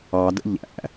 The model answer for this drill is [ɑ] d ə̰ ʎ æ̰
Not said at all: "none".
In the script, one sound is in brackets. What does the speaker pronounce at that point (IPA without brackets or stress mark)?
ɑ